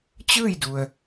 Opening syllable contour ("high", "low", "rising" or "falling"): falling